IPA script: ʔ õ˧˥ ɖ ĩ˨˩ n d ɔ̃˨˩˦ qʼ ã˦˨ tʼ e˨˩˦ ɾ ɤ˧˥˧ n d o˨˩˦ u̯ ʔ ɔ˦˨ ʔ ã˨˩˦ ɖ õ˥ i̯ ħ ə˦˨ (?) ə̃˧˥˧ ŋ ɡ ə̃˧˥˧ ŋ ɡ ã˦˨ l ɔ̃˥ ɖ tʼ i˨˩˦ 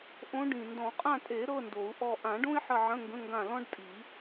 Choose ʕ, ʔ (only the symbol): ʕ